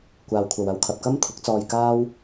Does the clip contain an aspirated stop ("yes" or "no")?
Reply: yes